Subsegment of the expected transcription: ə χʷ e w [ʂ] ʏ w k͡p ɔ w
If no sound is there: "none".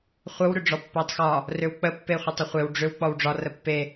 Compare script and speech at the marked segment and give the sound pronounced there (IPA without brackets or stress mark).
ɖ͡ʐ